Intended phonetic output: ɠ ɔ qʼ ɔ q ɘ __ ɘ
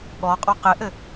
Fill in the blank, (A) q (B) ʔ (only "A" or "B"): B